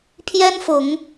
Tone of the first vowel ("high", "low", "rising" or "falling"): high